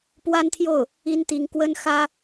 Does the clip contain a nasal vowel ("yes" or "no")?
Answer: no